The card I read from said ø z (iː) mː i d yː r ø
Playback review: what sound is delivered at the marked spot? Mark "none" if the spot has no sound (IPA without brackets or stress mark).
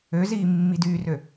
iː